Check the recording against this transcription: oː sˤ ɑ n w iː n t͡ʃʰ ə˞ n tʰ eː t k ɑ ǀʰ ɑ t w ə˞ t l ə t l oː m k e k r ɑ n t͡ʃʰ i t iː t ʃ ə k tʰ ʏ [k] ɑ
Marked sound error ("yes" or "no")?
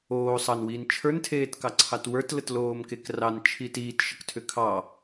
yes